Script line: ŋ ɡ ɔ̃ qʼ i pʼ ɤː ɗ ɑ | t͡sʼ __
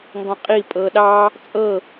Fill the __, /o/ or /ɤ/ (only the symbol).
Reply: ɤ